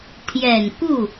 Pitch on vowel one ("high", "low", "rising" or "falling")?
low